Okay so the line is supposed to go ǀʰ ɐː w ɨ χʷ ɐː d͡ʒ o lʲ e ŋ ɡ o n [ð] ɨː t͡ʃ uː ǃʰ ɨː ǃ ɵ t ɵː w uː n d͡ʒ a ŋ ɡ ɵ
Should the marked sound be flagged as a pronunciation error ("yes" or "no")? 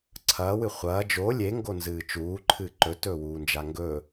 yes